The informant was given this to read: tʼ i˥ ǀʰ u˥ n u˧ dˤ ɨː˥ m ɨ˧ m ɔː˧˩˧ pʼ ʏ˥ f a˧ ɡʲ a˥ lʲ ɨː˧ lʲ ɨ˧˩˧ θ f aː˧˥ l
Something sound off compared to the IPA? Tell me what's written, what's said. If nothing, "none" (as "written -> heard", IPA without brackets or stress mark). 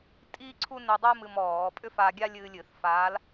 none